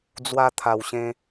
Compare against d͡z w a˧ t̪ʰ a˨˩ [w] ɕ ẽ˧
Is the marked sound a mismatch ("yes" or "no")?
no